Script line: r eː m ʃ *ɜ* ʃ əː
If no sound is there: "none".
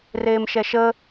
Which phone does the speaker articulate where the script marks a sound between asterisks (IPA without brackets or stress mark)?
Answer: ɛ